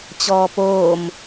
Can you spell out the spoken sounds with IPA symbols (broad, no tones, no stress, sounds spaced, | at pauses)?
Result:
t͡ɕ ɔː p oː m